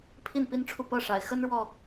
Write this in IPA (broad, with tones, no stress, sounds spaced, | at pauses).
pʰ i˥˨ n p i˦ n ʈ͡ʂʰ u˥˨ p ɤ˥˨ ʂ a˨˩ ɪ̯ x ə˦ n ɻ w ɔ˨˩